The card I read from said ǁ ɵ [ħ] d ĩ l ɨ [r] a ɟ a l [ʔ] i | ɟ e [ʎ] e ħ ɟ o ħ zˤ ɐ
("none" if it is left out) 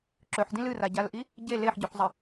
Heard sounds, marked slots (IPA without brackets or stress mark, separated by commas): ħ, r, ʔ, l